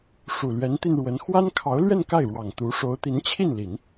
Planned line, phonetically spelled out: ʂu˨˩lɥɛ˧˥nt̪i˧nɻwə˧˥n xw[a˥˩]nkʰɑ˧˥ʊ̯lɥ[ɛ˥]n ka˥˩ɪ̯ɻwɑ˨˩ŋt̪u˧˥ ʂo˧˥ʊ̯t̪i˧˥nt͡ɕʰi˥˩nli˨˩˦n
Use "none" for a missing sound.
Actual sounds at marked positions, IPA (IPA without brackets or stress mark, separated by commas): a˥, ɛ˥˧